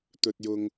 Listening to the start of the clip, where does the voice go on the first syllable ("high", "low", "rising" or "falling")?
low